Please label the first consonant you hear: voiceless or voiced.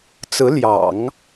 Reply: voiceless